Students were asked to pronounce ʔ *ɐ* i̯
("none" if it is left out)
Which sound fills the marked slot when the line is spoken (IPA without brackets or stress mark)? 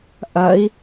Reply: ɐ